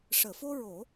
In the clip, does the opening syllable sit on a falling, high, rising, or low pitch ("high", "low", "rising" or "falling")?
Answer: low